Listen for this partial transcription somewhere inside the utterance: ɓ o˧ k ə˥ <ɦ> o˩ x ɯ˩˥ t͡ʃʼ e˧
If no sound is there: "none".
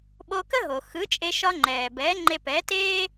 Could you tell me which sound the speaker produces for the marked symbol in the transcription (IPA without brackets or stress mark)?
ɦ